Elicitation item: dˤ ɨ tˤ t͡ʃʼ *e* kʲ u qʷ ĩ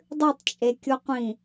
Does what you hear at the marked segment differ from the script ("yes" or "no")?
no